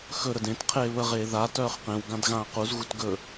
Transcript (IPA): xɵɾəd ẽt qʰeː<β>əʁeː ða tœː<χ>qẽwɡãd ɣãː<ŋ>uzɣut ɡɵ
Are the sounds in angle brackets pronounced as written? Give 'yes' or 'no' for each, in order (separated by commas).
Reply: yes, yes, no